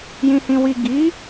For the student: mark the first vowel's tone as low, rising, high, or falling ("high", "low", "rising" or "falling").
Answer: low